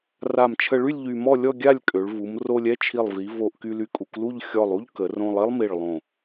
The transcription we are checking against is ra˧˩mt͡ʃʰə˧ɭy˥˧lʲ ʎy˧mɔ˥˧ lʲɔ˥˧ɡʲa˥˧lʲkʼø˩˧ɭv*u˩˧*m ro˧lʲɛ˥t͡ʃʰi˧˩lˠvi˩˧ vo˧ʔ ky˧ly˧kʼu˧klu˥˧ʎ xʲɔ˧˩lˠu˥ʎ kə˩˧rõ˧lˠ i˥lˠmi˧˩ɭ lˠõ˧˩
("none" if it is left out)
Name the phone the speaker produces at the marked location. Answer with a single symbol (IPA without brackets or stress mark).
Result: u˩˧